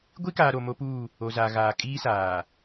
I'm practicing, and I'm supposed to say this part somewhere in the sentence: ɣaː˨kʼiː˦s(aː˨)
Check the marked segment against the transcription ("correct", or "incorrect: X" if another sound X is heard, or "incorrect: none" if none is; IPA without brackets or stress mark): correct